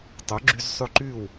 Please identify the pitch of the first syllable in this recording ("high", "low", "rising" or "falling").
rising